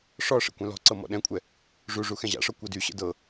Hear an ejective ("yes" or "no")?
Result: yes